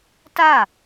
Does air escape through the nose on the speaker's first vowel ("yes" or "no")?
no